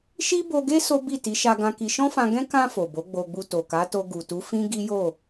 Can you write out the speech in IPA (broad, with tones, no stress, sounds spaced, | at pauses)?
ʃ i˦ b o˧ ɡ e˦ s o˦ b i˦˨ t i˨˦ ʃ a˧ ɡ ã˧ k i˧ ʃ ɔ̃˦ f ã˧ ɡ ɛ̃˦ k ã˧ f o˨ b o˨˦ ɡ͡b o˧ ɡ͡b u˧ t o˨ k a˨˦ t o˧ ɡ u˨ t u˨˦ f ĩ˦ ɡ i˦ j o˦˨